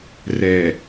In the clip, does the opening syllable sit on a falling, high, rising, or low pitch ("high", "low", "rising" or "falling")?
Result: low